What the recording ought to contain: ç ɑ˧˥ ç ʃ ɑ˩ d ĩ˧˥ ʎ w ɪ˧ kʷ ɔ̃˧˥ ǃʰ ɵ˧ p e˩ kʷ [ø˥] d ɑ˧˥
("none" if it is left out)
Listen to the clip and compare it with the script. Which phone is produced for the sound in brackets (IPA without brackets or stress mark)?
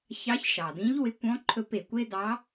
e˥